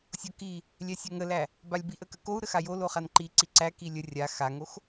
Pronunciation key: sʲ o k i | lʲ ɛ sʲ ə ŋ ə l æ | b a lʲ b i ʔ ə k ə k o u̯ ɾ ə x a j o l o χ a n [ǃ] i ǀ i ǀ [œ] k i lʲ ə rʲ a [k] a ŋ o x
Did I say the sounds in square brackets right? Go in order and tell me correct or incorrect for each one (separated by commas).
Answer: correct, incorrect, incorrect